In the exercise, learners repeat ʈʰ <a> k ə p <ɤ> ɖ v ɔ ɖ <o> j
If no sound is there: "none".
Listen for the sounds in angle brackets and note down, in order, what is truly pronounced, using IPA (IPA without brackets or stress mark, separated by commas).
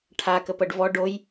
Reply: a, ɤ, o